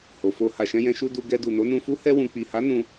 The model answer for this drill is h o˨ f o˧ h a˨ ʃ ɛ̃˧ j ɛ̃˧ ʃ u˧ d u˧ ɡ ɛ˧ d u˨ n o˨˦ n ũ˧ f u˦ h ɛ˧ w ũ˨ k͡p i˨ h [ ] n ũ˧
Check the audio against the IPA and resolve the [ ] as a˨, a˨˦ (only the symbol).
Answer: a˨˦